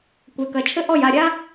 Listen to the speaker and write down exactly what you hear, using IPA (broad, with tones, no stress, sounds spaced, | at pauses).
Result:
kʷ e˩˧ k ɐ˩˧ t͡ʃʰ ɘ˥ ʔ ɔ˦˨ j a˦˨ ɾʲ a˥